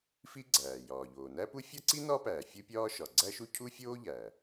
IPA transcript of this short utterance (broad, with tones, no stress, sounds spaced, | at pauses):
f i˥ ɡ͡ǀ æː˩ j ɒː˩ ʎ oː˩ n æ˥ p u˥ fʲ ɒ˥ ǀ i˥ n ɒ˥ p æː˩ fʲ u˥ pʲ ɒː˥ ʃ ɒ˩ ɡ͡ǀ æ˥ ʃ u˥ cʰ u˥ fʲ oː˥ ʎ æ˩